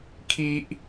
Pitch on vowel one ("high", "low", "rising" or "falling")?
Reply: high